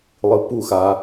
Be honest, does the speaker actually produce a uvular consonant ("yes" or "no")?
no